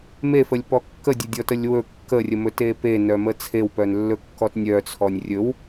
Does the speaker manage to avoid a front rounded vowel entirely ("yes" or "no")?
no